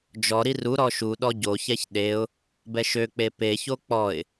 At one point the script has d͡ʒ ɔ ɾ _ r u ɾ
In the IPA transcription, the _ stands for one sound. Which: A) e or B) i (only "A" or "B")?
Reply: B